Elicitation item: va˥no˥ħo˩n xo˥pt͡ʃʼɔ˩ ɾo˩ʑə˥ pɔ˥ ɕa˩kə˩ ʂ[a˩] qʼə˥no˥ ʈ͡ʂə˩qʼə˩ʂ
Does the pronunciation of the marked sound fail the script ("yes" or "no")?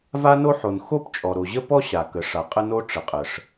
no